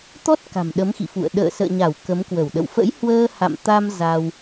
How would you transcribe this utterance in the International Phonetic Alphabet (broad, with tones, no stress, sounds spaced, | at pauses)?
t̪ ɔ˦˥ t̚ k a̤˨˩ m ɗ ə˨˦ m x ḭ˧˨ f ṵ˧˨ ə̯ ɗ ə̰ː˧˨ s ə̰ː˧˨ ɲ a˧˩ w k ə˨˦ m k w ə˧˩ w ɗ ə̰˧˨ w f ə̰˧˥ j h w əː˧ h a̰˧˨ m t̪ a˧ m z a˧ w